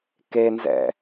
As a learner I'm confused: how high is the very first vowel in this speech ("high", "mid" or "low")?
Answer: mid